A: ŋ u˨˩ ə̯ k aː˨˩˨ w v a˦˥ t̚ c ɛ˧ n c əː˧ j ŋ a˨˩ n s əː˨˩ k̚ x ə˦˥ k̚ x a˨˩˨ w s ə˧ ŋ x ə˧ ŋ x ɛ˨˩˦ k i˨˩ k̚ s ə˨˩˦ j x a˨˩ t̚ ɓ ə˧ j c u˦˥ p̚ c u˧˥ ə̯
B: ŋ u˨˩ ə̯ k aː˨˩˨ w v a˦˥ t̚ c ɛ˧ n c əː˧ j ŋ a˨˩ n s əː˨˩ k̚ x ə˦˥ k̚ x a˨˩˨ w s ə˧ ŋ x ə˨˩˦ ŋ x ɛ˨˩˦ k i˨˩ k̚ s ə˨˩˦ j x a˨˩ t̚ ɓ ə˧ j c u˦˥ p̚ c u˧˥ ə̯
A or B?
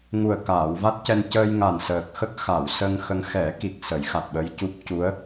A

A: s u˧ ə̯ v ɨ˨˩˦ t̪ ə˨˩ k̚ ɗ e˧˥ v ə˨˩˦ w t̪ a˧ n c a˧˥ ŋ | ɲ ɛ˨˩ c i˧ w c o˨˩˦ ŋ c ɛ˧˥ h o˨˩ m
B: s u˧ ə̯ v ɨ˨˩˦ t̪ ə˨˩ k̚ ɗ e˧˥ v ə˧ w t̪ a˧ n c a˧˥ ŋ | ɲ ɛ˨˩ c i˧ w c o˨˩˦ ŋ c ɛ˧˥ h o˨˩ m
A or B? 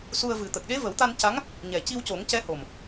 A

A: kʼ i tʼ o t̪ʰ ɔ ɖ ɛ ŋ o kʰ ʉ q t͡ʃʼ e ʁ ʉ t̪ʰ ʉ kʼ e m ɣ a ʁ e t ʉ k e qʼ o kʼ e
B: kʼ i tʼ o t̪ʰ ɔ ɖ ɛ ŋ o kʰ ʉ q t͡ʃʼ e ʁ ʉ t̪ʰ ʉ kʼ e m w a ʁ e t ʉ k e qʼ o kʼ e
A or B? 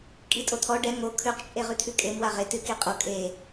B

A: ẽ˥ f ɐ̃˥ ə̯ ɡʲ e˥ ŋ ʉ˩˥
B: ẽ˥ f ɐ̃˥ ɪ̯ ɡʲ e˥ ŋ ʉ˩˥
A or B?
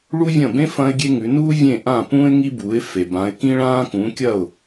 B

